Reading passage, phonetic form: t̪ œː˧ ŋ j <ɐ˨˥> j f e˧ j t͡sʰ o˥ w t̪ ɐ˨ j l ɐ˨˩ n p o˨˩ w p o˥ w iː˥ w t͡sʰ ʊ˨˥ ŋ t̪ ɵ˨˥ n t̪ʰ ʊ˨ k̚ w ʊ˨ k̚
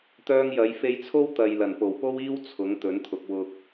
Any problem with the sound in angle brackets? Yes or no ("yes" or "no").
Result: yes